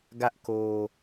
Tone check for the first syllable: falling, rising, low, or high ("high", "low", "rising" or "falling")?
high